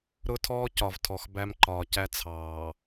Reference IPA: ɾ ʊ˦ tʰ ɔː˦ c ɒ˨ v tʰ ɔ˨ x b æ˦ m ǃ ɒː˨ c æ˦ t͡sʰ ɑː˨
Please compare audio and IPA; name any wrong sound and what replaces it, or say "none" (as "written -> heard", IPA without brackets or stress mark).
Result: none